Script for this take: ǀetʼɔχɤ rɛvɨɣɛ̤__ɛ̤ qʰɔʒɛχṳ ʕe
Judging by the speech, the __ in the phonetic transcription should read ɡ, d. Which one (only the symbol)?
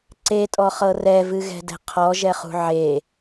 d